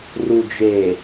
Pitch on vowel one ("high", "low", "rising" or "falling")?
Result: low